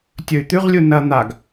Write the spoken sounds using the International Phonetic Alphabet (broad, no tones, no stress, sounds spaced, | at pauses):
tʲ ɵ y̯ t̪ ʉ ʁ lʲ u n ɐ n̪ a ɡ